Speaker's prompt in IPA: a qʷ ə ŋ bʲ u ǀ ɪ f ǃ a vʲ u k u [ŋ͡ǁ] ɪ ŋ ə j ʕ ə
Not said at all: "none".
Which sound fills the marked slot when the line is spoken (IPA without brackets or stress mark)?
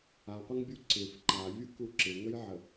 ǁ